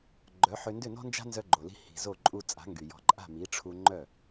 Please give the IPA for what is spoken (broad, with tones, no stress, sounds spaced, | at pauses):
ɡ͡ǃ œ˩˥ ħ ʏ˧ n d ʏ˥˩ n ɔ̤˥ n d͡ʒ a̤˥ n z œ˧ ɡ͡ǃ o˩ l i̤˧ h i̤˩ z o˥˩ ǃʼ u˧ t͡sʼ a̤˩˥ ŋ ɡ y˩ j ɔ̤˩˥ ǃʼ a̤˥˩ m i˩˥ ʈ͡ʂʰ u˧ ŋ͡ǃ œ˥˩